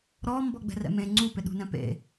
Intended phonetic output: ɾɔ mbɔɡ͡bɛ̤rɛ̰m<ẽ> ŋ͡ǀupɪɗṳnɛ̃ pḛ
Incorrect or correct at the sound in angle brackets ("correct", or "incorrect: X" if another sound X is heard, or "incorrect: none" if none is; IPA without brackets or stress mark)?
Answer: correct